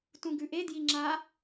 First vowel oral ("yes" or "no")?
no